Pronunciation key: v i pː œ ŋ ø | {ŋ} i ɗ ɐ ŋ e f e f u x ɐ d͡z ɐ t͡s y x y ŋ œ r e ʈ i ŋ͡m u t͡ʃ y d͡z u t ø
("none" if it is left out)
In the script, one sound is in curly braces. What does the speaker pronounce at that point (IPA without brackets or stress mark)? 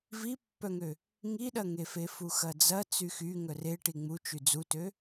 ŋ